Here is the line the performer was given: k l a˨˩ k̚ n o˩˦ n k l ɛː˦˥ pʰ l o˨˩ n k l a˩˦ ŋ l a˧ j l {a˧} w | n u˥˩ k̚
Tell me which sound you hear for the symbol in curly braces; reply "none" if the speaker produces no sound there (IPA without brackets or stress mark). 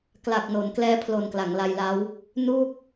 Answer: a˦˥